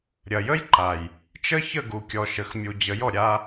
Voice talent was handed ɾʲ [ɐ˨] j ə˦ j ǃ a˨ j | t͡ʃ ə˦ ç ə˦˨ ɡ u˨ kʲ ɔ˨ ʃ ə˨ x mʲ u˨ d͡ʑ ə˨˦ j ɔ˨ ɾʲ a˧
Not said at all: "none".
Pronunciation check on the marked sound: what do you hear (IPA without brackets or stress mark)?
ɐ˨